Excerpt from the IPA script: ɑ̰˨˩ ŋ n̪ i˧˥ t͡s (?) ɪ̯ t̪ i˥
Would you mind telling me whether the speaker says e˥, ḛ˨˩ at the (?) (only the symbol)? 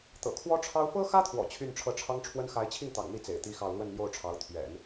ḛ˨˩